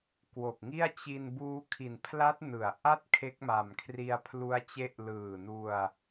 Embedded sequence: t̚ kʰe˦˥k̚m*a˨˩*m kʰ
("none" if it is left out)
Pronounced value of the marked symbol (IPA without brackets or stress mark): a˨˩